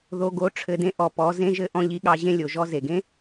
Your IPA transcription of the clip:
ð o˨ ɡ o˨˦ ʈ͡ʂʰ ɘ˨ d ẽ˦ ʔ ɔ˨ p ɔ˨˦ z ẽ˦ ʒ ɘ˦ ʔ ɔ̃˦ ʎ i˦ ɠ ɑ˦ ʑ ẽ˦ lʲ o˨ ʒ ɔ˦ z e˨ ɡ ẽ˦

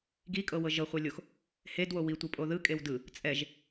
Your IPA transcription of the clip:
ɡ i kʼ ɤ w ɤ ʒ ɤ χʷ e lʲ o x | h e d w o w i tʷ ɯ pʼ o ð ɯ kʼ e w d ɯ | t͡sʼ ɛ ʒ

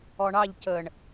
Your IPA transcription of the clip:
ɔ ɳ ɑ ʎ c ə ɳ

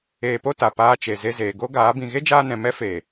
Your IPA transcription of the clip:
eː˧ p o˦ t a˨ p aː˧ t͡ʃ e˨ z e˧ z eː˨ ɡ o˦ ɡ aː˨˦ b ĩ˧ ɣ e˦ d͡ʒ aː˧ n ɛ̃˨ m ɛ˦ f eː˨

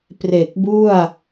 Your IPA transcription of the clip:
p r e˨˩ k̚ b u˥˩ a̯

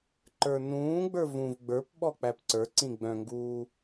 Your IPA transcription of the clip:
ǃ ə˞ n ũː ɡ͡b ə˞ v ũ v ɡ͡b ə˞ p ɓ ɔ k͡p æ p ǀ ə˞ ǀ ĩ ɡ͡b œ̃ ŋ ɡ uː

